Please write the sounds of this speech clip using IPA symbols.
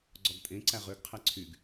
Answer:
ɡ͡ǀɔɡtʼẽ ǀæʁøɡ qʰæǀʰyɡ

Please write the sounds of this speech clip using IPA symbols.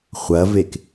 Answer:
χʷɐvek

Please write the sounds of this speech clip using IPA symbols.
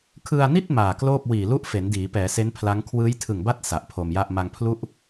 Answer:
kʰɯ˧a̯ni˥˩t̚ maː˨˩kloː˥˩p̚ wiː˨˩lu˥˩ʔ fe˩˦ndiː˩˦pɛː˩˦se˦˥n pʰla˦˥ŋ kʰwɯː˦˥jtʰɯ˨˩ŋba˥˩t̚ sa˨˩ʔpʰo˧mja˥˩ʔ ma˧ŋpʰlu˥˩ʔ

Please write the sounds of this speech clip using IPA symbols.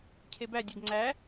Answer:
cʰebædʲeɡ ŋ͡ǀæ

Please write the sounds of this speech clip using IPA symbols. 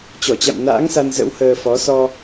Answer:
t͡ɕɔ˧˩t͡ɕa̰˧˨m na̰ː˧˥ŋsa˧n zə̰˧˥whəː˧fɔ˨˦ sɔ˧

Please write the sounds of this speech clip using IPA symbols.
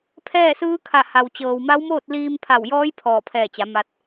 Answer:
pʰɛː˥˨sɯː˧˥kʰa˧˩ ha˩wt͡ɕɤː˩wma˧˥wmoː˥˨t̚ liː˧mpʰa˧˩wjɔː˧˥j pʰɔː˧˩pʰɛː˧˩t͡ɕa˩˧ ma˧t̚

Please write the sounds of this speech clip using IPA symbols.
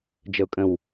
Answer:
d͡ʒəʊ̯kʼə̃w

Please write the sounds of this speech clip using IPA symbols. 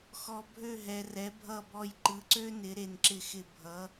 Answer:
xɔ˨ bʱø˦˨ɦɛ˨ rɛ˨˦bʱʌ˦˨bɔ˦˨j ǃɯ˨˦ǀø˥nɪ˨˦ ɾe˨nǁɪ˦˨xɪ˦˨ bʱʌ˨˦

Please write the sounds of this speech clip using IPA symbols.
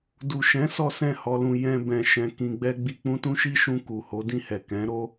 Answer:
du˨ʃɛ̃˨˦ sɔ˦sɛ̃˦˨hɔ˧lũ˧ jɛ̃˧ bɛ̃˨ʃɛ̃˨ kĩ˧ɡ͡bɛ˦ ɡ͡bi˧k͡pũ˦tũ˦ ʃi˦ʃũ˧ ku˨ho˨˦dĩ˦˨hɛ˨ kɛ̃˨˦ ɾo˦

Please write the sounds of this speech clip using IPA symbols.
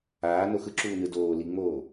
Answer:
aːno xɯǁuːnɯ doː liŋ͡moː

